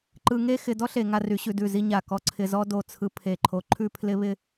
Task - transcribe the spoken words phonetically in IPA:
ǃɯ˧ŋe˥˧ xɪ˧dɔ˥ɬe˩˧ ŋa˧ry˩˧ɕʉ˩˧ dʉ˧˩zi˥˧ ɲa˧˩kɔ˥˧ǀʰɪ˧zɔ˥ do˧˩t͡sʰɯ˧ pʰe˧˩ǃʰo˧ ǃʰʉ˥˧pʰlɪ˥βɪ˥

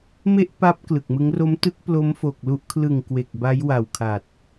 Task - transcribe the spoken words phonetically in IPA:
me˥˩ʔpa˦˥p̚ klɯ˨˩k̚mɯ˦˥ŋ ro˦˥mtɯ˦˥k̚ plo˦˥mfo˨˩k̚lu˦˥ʔ kʰlɯ˨˩ŋ kwe˨˩k̚ba˦˥jwa˨˩w kʰa˨˩t̚

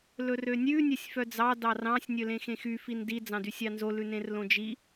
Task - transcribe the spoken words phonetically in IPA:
lɵrønʲʉ nʲɛsʲfœd͡zɑ dɑrɑ̃sʲ nʲɵlẽxẽxy findi d͡zɑ̃dysʲɑnzo lʉnẽrlõd͡ʒi

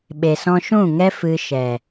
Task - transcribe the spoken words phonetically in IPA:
ɓe˨sɔ̃˧ʃũ˦˨ŋɛ˦ fɨ˧ ʃɛ˨

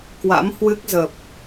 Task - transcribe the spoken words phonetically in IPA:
kwa̰˧˥mhwɨ˦˥k̚zə˨˩p̚

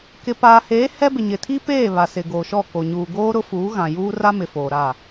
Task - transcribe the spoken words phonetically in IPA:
kɪ˨ paː˨heː˨˦ hɛ˦bɪ˨ɲɪ˨ tʰi˦peː˦˨ βa˨sɪ˨ɡoː˨ʃɔ˦˨ ko˨ ɲuː˨ ɡoː˦ ɾʊ˦fuː˨˦ɣã˨ juː˦ra˦mɪ˨ foː˨ɾa˦˨

